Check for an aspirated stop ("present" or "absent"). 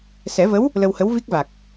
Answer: absent